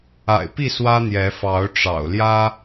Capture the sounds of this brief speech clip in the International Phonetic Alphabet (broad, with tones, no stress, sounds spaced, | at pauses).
a̰˨˩ ɪ̯ p i˥˨ s w ä˦ n̪ j ɛ˨˦ f ɑ˨˦ ʊ̯ ʈ͡ʂ ɑ̰˨˩ ʊ̯ l j ä˦